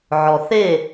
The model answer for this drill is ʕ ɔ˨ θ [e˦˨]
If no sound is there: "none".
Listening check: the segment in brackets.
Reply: e˦˨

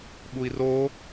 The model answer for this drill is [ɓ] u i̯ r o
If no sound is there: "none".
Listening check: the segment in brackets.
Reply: ɓ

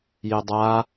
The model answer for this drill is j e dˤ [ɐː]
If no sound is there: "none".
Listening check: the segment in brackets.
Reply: aː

